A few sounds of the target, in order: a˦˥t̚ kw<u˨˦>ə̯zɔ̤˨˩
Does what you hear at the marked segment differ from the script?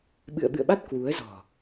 no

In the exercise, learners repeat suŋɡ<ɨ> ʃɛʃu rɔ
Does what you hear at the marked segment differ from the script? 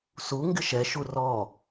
yes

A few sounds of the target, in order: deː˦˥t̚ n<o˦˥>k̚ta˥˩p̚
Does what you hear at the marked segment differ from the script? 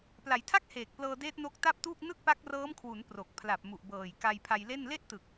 no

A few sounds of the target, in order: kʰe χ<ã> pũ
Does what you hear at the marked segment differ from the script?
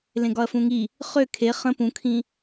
yes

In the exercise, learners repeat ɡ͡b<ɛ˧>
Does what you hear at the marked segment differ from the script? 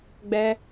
no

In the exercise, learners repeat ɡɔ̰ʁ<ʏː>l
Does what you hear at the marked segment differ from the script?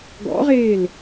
yes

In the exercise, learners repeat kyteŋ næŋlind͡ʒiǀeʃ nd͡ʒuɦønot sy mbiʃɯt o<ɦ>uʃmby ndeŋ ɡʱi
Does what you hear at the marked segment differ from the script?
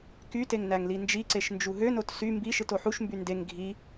yes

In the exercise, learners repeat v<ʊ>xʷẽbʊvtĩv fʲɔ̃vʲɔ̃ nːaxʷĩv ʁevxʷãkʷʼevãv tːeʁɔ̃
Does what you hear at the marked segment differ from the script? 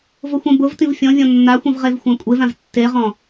no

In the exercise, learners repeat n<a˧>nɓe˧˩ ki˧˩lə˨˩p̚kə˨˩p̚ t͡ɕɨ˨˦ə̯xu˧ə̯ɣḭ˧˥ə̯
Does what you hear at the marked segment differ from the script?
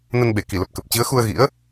yes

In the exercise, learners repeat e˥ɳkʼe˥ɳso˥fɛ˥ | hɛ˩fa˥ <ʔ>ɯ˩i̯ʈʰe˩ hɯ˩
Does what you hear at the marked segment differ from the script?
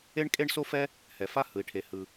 yes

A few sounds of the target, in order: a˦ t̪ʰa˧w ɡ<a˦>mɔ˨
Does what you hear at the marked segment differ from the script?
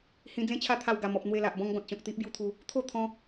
yes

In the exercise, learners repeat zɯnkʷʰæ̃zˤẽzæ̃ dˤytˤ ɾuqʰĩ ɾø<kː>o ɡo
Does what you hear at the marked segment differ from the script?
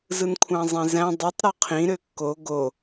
no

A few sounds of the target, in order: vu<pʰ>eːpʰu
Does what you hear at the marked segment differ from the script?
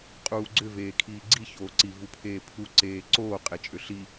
no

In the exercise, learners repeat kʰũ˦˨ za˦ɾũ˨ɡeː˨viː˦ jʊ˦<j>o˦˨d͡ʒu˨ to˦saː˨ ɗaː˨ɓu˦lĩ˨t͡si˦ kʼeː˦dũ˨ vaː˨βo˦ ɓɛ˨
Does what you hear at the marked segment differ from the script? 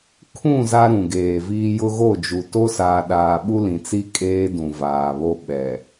yes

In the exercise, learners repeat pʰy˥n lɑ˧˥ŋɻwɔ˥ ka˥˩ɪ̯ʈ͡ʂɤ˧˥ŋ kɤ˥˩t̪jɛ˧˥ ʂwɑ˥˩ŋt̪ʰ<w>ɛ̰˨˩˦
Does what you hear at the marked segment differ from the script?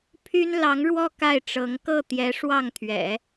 yes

